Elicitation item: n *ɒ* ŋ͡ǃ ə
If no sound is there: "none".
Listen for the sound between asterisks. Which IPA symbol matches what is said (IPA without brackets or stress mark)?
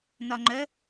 ɒ